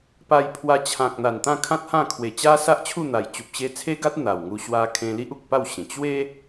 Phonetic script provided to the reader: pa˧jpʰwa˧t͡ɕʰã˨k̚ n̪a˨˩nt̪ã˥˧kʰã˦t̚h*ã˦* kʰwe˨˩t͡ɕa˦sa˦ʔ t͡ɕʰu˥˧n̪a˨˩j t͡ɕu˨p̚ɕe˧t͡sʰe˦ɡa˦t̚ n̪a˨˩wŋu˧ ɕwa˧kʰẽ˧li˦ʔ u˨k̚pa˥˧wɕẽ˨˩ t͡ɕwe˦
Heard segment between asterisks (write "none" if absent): ã˥˧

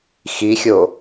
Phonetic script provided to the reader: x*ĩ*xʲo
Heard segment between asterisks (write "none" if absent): i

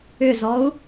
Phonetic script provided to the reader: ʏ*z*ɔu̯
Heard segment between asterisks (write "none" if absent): z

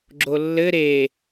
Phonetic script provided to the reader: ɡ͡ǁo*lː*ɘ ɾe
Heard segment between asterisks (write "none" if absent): lː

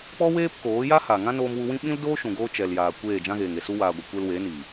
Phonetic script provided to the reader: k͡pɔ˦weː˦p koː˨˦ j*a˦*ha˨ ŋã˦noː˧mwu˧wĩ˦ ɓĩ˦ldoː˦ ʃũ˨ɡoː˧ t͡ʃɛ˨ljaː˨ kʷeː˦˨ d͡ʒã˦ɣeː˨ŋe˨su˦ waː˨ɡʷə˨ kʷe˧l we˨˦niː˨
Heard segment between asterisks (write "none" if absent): a˦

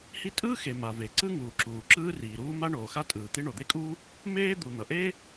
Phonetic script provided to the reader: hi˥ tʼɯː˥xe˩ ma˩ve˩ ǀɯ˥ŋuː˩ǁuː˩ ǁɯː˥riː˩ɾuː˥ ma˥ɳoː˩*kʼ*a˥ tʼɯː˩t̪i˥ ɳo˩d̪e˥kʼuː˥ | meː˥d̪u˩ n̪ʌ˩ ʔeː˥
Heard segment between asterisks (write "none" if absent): x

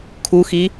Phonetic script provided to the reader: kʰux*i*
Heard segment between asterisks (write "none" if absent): i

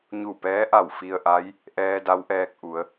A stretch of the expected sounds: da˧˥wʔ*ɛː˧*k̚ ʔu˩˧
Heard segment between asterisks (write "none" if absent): ɛː˧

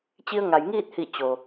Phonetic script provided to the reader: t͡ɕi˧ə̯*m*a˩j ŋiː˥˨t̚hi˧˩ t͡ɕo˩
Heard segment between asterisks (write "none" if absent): ŋ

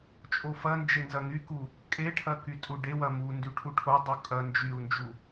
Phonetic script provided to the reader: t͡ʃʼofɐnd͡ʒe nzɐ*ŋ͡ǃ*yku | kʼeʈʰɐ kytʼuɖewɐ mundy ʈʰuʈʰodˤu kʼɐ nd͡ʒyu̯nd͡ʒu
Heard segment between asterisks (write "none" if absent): ŋ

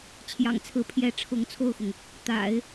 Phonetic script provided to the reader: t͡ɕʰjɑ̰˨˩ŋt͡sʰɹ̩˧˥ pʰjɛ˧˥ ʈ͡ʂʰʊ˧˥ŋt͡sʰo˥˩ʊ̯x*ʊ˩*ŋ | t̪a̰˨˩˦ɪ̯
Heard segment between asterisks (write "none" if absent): ʊ˩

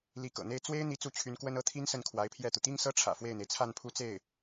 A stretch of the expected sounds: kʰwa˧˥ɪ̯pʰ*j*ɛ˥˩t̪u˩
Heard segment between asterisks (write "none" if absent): j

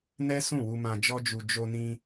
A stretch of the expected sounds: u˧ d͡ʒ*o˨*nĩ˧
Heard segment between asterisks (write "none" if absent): o˧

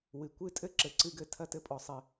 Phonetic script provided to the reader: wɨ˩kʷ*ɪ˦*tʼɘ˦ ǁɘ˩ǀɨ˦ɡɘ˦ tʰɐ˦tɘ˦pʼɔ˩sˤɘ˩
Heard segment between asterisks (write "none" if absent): ɨ˦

